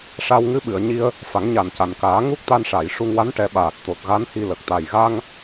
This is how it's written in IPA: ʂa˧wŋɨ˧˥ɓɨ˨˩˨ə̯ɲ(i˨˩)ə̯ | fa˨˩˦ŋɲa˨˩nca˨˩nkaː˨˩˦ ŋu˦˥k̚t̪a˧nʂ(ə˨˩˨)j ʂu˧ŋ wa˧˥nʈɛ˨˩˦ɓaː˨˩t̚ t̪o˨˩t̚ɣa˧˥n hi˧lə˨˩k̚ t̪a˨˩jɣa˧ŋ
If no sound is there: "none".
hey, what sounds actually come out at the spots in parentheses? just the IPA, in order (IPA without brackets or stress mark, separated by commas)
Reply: i˧, a˨˩˨